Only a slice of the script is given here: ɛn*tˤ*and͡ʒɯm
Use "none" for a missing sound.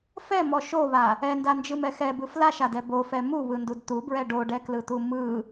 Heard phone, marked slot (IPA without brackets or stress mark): d